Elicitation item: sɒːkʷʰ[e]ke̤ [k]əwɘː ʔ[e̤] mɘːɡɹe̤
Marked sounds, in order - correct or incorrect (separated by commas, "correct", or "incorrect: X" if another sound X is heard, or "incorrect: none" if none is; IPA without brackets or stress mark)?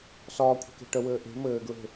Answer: incorrect: e̤, incorrect: ʈ, correct